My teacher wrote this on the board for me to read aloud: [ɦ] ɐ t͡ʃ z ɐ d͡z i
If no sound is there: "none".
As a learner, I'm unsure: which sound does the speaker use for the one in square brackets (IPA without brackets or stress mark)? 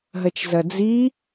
ɦ